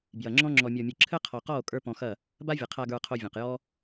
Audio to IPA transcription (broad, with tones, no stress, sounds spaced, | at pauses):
b j ɐ˨ ŋ͡ǁ ɔ̃˦ ŋ͡ǁ ɔ˨ mʲ ɔ˨ mʲ ɯ˨ ǁʰ ɘ˦ qʰ ɔ˨ q ɔ˦˨ o̯ kʼ ə˞˦ p ɔ̃˧ x ɐ˦˨ | b a˦ vʲ ɐ˨ qʰ a˧ ɡ ə˞˧ qʰ o˧ vʲ ɔ̃˨ q j ɔ˦